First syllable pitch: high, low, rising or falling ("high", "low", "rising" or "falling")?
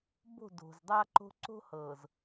falling